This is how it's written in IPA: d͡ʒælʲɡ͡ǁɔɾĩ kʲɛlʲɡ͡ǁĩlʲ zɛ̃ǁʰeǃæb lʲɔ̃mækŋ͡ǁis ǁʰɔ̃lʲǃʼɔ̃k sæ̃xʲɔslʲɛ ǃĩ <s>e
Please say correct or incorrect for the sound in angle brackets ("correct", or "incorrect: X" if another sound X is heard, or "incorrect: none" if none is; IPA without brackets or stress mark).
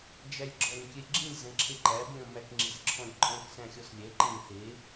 incorrect: θ